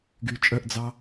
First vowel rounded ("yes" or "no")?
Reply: yes